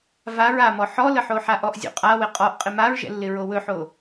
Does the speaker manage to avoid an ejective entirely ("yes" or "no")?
no